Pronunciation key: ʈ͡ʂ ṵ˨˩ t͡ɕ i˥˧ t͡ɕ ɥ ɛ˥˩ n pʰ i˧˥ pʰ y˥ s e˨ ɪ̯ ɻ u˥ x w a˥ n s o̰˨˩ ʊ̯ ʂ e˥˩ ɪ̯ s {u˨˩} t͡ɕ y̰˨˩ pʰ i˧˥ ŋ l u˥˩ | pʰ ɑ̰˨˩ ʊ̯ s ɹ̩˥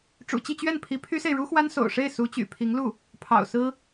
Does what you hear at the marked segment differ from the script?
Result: yes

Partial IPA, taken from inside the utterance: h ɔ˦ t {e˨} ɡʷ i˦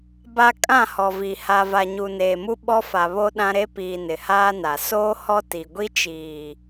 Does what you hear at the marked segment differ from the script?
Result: yes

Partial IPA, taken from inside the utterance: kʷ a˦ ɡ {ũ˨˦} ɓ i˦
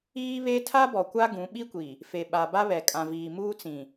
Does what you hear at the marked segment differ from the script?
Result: no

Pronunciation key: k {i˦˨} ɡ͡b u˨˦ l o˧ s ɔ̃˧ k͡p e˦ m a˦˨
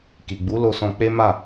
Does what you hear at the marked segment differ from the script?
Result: yes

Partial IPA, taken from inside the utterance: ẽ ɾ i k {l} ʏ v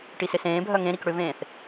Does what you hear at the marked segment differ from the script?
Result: yes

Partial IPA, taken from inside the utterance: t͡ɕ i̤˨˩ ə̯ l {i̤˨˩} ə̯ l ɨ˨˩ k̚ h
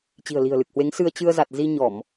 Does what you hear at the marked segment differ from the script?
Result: no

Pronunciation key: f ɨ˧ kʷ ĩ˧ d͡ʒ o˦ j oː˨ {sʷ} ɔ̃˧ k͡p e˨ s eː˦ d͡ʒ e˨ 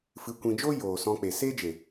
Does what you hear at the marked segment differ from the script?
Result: yes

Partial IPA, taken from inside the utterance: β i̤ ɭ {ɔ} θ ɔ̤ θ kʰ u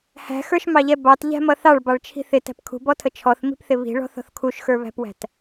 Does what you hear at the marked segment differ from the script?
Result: yes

